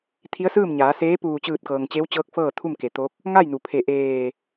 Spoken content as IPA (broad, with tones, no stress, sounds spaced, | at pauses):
t̪ʰ i˧˥ ə̯ s ɯː˥˨ m ɲ aː˩˧ s eː˧˥ p uː˧˩ t͡ɕ ɯː˧˩ t̚ k ɤː˩ ŋ t͡ɕ e˧˥ w t͡ɕ ɤː˧˥ k̚ f ɤː˥˨ t̪ʰ u˥˨ m k e˩˧ t̪ o˧˥ k̚ | ŋ a˥˨ j n u˩ pʰ e˧˩ ʔ eː˧˩